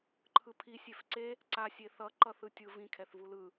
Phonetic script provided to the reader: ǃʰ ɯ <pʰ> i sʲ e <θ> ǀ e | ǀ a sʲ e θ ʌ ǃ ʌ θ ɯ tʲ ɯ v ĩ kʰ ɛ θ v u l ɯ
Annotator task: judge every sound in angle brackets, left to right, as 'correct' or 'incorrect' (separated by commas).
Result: correct, incorrect